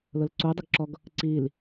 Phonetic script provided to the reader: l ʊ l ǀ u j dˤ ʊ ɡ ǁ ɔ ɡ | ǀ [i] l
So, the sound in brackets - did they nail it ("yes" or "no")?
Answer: yes